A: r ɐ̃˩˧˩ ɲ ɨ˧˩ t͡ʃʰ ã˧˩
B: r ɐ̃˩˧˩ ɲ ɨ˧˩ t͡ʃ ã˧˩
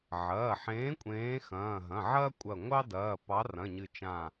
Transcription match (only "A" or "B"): B